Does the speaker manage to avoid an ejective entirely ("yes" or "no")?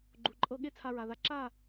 no